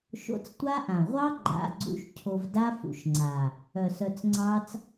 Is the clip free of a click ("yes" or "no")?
no